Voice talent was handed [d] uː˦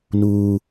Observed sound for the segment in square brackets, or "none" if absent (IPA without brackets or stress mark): n